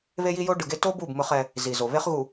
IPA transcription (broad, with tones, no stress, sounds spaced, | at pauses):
β e˦ j i˦ j o˦ ɖ ɯ˨ ɡ e˦ t o˦ b u˦˨ b m ɯ˦ χ ɛ˦ | z i˨ z o˨ β e˦ χ ɣ u˨